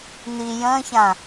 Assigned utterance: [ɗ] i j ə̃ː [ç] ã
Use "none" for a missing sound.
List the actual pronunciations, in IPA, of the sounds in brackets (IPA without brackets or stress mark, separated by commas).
n̪, ç